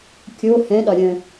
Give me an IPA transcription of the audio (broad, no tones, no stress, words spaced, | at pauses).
kʲo hɛ̃ɗɒ ɾʲə̃